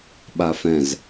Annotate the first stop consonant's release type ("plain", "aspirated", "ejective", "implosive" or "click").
implosive